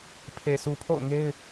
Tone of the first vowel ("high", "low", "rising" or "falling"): low